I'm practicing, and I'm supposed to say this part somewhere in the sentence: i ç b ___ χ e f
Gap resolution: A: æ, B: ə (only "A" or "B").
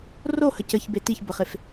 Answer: B